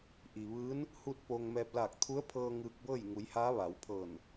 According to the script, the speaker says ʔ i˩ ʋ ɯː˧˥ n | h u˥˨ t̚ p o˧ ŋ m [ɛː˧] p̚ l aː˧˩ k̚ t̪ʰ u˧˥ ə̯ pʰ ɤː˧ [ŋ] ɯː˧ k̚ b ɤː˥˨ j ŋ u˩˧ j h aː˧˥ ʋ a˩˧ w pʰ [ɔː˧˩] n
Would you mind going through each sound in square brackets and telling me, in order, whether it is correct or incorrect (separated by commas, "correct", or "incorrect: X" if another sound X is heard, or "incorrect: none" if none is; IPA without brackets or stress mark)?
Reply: correct, correct, incorrect: ɤː˧˩